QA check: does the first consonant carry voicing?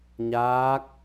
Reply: yes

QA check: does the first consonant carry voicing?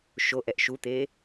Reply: no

